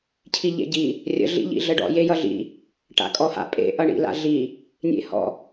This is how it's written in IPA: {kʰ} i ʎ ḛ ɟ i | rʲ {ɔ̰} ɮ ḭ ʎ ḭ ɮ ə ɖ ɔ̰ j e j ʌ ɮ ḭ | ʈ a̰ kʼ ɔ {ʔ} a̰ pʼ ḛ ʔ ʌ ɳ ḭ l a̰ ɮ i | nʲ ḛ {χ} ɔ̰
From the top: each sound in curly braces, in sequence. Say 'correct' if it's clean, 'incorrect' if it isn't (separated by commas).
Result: incorrect, incorrect, incorrect, incorrect